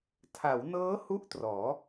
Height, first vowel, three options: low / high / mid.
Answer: low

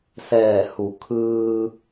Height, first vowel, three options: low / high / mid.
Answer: mid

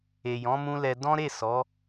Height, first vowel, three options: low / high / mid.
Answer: mid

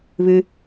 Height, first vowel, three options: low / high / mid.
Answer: high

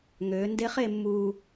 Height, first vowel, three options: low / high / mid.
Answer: mid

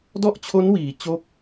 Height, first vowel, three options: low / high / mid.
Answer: mid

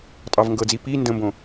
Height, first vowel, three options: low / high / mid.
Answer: low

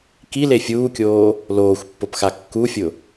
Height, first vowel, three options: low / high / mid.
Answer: high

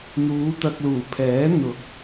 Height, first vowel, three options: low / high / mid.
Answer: high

